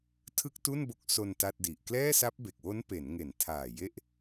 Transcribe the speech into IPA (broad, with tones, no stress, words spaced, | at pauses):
tʰɯ˥˩k̚tu˥˩nbo˦˥k̚ so˧n ta˥˩t̚di˨˩ʔ klɛː˥˩sa˦˥p̚be˨˩k̚wo˦˥n pe˩˦nŋe˩˦ntʰaː˨˩ je˥˩ʔ